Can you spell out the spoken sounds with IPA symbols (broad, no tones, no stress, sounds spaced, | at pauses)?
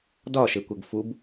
d ɒ ʃ e kʷ ɛ ɡ f u b